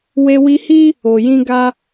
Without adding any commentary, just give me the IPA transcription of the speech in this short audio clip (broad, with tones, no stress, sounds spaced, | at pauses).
w e˧ w i˧ h i˦ | o˨ j ĩ˧ ɡ a˧